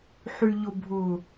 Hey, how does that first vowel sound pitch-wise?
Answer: low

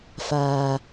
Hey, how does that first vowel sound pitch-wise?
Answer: low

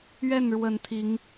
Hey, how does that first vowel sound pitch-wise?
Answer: falling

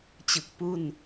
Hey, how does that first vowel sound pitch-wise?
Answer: low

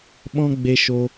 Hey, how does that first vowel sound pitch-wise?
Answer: high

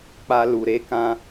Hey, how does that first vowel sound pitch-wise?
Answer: high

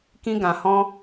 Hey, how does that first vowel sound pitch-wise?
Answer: high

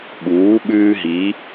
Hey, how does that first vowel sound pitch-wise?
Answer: rising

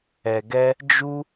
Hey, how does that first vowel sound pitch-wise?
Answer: low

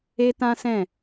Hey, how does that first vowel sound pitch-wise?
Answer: high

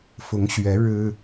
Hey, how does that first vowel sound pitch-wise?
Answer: rising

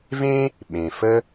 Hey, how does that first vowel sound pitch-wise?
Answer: high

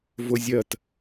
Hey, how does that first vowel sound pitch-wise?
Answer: high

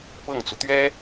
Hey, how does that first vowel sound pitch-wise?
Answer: falling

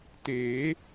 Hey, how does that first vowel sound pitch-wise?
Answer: rising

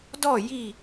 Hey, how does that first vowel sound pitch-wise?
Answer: falling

